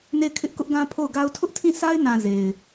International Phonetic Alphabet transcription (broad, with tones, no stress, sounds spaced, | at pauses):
n e˦˨ ɪ̯ kʰ ɪ˦ ʔ k ʊ˦ ʔ ɡ ã˦ pʰ o˦˨ ʊ̯ ɡ a˦ ʊ̯ tʰ ʊ˦ ʔ tʰ ĩ˦˨ s a˦ ɪ̯ n ã˨ z e˨ ɪ̯